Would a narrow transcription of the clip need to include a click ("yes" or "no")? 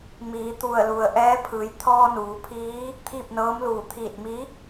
no